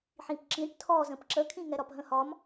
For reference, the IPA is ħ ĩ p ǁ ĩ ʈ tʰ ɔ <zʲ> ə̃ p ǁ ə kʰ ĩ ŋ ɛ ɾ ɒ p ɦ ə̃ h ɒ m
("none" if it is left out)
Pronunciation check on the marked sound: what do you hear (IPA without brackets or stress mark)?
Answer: z